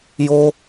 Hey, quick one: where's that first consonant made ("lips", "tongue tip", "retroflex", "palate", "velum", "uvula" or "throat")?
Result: palate